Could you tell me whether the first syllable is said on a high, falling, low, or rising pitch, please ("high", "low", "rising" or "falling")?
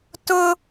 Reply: high